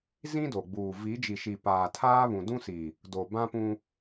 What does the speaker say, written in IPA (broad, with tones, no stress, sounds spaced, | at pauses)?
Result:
z ĩ˦ d o˨ ɡ͡b uː˨ v i˨˦ d͡ʒ i˨ ʃ i˨ p aː˨ tʰ aː˦ β ũ˨ d ũ˦ s i˨ | d o˨ b ã˦ p ũ˦